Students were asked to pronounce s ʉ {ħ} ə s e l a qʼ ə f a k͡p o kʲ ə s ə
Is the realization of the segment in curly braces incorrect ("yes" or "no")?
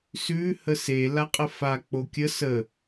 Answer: yes